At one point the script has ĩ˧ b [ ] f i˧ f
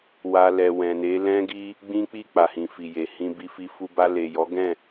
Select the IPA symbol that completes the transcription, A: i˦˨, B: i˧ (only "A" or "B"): B